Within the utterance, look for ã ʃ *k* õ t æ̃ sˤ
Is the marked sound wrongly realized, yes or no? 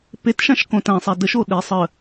no